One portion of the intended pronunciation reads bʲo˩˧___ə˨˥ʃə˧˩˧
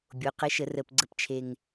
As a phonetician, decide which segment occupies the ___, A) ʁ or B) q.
B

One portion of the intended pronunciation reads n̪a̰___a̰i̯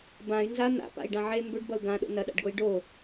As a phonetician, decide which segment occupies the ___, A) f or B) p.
B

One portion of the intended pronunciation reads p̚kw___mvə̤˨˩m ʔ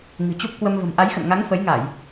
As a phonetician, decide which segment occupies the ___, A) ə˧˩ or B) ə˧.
B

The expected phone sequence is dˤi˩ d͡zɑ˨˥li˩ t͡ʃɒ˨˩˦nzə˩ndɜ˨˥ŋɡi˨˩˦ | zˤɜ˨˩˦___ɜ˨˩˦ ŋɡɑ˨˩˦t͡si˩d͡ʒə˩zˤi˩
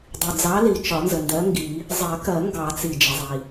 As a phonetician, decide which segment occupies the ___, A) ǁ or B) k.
B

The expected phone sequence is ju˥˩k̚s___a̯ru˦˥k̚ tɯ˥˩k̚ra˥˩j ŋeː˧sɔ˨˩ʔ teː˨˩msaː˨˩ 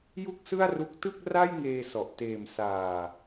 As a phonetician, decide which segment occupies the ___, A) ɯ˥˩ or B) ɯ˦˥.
A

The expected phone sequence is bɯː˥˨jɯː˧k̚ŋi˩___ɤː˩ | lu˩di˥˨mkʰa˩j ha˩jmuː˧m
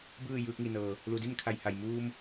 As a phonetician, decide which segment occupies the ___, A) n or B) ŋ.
A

